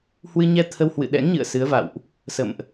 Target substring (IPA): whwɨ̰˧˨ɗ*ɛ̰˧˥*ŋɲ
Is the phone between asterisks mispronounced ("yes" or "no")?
no